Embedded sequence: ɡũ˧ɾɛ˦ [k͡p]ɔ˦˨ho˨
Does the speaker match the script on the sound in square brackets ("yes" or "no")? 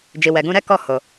no